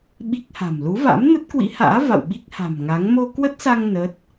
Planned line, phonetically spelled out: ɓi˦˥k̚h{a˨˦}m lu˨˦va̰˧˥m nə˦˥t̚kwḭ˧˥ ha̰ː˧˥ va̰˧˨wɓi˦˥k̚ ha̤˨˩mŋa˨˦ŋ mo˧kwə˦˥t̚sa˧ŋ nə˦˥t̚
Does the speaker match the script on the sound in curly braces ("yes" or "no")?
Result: no